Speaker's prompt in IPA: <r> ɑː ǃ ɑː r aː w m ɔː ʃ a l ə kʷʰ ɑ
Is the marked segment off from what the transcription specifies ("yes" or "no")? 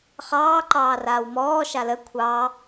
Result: yes